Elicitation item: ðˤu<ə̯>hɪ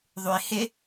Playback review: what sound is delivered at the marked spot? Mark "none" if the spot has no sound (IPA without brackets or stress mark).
ɪ̯